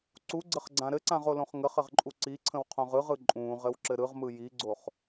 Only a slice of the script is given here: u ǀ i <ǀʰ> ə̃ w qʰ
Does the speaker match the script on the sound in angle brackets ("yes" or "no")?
yes